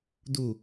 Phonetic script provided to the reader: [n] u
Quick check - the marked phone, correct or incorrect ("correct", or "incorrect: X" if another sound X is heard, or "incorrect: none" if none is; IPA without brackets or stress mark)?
incorrect: d